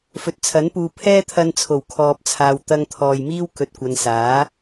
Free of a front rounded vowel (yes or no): yes